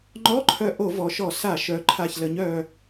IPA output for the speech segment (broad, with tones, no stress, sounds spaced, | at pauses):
ŋ͡ǃ ɔ˧˥˧ ǃʰ œ˧ ʔ o˧˩˧ v ɔ˩˧ ʃ ɔ˧˩˧ s a˧˩˧ ʃ œ˩˧ ǃʰ a˨˩ ç l ə˩˧ ɲ œ˨˩